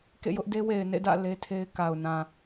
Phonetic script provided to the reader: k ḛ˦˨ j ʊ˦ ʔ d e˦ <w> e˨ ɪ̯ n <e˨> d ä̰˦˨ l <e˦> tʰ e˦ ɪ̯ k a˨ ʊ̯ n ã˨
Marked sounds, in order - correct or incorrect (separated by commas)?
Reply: correct, incorrect, correct